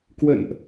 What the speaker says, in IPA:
kwə̰˧˨nʔ

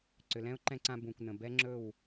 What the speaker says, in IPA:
ǀʏ˨lɛ̃˦ʊ̯ǃɛ̃˧ǀã˧ bũ˨kʷnə̃˨bɛ˦ ŋ͡ǁɵ˦˨w

